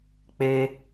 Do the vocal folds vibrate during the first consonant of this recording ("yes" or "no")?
no